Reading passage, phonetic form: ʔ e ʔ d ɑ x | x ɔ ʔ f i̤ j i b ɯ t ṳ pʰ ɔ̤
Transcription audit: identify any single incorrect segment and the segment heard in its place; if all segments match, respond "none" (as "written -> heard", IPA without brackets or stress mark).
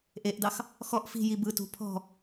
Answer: none